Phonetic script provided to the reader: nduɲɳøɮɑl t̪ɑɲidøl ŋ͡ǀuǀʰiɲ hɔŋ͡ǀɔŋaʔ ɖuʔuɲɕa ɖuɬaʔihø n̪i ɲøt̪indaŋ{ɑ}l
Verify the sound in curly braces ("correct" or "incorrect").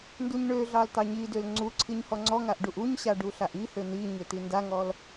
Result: incorrect